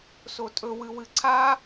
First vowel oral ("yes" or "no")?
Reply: yes